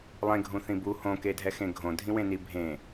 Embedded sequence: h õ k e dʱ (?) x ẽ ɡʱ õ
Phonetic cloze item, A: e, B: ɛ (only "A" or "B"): B